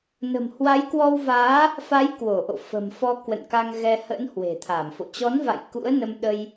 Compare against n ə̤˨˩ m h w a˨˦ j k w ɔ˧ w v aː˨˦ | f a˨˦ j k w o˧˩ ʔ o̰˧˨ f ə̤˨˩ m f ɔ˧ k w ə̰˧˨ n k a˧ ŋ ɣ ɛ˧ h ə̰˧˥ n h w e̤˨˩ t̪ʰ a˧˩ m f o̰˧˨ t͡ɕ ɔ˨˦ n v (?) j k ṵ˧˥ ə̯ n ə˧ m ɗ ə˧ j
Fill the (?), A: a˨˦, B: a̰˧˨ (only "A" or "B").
B